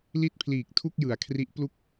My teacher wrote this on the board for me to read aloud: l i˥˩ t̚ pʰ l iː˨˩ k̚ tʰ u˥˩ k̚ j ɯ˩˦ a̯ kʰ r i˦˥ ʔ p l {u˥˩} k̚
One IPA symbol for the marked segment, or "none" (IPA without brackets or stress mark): u˥˩